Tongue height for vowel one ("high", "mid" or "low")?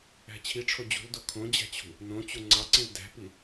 low